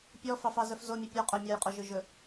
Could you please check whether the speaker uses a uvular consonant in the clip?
yes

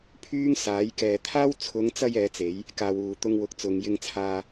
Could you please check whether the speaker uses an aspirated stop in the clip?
yes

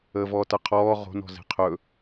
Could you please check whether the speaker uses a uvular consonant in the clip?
yes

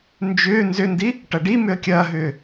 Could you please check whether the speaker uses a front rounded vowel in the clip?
yes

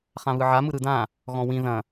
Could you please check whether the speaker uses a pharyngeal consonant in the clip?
yes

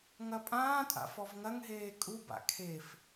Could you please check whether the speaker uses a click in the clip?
no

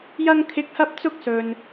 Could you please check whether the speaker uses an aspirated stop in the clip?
yes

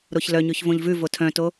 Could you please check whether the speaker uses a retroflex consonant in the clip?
no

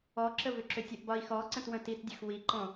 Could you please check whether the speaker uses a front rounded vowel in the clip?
yes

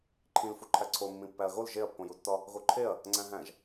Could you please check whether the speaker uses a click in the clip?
yes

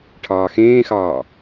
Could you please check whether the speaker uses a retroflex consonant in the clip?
yes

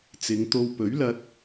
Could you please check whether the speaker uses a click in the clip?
no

